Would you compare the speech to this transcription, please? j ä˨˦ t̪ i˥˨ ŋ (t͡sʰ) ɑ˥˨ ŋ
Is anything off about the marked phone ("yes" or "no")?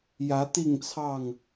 no